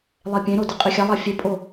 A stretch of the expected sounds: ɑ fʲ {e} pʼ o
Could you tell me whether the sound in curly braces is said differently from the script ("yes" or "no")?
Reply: no